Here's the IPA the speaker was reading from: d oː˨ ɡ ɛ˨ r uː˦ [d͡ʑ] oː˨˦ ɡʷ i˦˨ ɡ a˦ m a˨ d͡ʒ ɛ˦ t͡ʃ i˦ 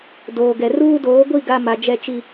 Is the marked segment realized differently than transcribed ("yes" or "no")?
yes